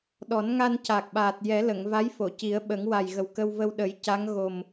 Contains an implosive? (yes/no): yes